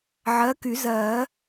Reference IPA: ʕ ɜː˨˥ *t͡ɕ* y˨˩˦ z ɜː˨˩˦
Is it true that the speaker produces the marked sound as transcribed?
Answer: no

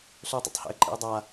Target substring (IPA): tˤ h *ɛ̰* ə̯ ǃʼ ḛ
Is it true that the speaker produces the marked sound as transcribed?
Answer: yes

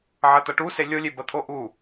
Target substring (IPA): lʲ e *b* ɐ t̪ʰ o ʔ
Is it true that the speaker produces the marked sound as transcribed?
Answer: yes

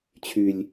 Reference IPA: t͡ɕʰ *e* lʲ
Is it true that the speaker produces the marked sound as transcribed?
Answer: no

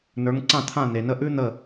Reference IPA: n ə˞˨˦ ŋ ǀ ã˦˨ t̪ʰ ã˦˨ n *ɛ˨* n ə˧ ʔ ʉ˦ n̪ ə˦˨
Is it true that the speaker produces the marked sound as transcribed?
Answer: no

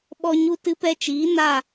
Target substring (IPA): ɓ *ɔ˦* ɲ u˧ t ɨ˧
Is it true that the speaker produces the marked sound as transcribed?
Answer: no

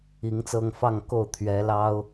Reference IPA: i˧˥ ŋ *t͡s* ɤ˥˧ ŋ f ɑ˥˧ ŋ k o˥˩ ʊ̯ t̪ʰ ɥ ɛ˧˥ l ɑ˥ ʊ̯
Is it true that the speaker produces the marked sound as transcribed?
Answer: yes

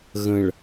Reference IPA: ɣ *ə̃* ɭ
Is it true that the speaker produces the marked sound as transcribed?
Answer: yes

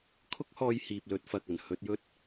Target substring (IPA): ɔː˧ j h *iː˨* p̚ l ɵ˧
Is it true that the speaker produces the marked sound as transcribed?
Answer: yes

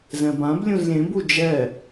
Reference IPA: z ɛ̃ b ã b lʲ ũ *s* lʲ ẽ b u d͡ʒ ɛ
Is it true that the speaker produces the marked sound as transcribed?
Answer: no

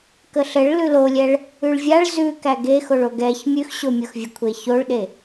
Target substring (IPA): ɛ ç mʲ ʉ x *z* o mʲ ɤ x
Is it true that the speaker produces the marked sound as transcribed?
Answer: no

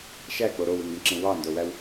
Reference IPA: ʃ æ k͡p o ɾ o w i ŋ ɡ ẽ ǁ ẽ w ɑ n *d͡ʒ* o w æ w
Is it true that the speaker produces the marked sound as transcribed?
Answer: no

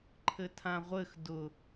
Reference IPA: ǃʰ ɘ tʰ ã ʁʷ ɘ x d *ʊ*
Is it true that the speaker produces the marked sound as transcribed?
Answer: yes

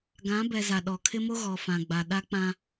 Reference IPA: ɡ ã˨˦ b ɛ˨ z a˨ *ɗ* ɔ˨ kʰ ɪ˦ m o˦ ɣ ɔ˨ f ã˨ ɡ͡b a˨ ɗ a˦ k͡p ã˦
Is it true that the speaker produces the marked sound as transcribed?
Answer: yes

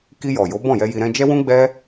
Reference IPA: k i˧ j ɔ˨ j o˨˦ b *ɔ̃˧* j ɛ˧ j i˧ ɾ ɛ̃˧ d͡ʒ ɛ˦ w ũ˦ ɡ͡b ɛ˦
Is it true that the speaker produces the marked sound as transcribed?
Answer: no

